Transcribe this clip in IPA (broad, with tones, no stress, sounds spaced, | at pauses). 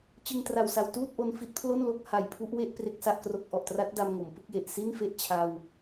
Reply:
t͡ɕ ɯ˧ ŋ t r a˨˩ w s a˨˩ w t uː˥˩ t̚ ʔ o˧ n f i˦˥ t̚ pʰ l o˥˩ n l o˦˥ k̚ h a˨˩ j pʰ u˦˥ ʔ w e˥˩ ʔ p r e˥˩ k̚ s a˥˩ ʔ k r o˦˥ k̚ ʔ ɔ˨˩ ʔ t r a˦˥ t̚ d a˧ m ŋ o˩˦ m p ɯ˦˥ k̚ j e˨˩ ʔ s i˥˩ n f e˥˩ ʔ t͡ɕʰ a˧ w